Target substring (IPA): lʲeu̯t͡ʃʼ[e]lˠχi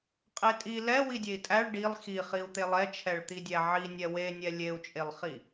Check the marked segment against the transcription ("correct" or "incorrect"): correct